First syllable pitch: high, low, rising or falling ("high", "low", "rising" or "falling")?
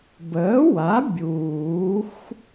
rising